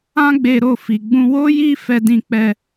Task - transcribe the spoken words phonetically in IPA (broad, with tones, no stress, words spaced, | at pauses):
ã˦ɡ͡be˧ɾo˧ fi˨ɡ͡bũ˧ wo˦ji˦ fɛ˧dĩ˧k͡pɛ˧